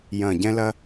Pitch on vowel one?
low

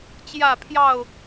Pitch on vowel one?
falling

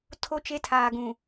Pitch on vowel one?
falling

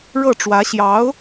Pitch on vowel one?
falling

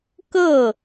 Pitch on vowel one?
falling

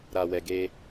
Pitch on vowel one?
low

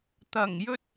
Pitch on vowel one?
low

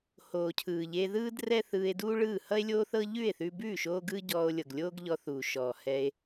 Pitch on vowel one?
low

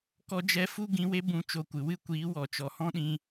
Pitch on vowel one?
high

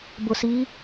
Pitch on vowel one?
low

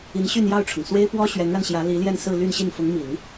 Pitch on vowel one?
rising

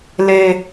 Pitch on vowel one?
high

